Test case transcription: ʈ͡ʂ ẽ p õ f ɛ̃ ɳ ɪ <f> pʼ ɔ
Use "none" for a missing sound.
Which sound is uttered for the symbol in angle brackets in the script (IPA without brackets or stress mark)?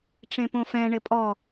none